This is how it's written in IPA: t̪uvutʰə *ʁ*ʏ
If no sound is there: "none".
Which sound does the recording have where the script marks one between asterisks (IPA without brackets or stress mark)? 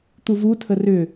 r